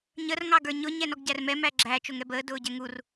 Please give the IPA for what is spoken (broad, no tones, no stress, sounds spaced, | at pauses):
ɲ ə r ŋ ɑ ɡ ə˞ ɲ ʊ ɲ ɛ n ɔ ɡ ɟ æ r m ɛ m æ ɡ͡ǁ æ t͡ʃ ʊ ŋ ɛ b əː d ʊː ɟ ɛ ŋ u r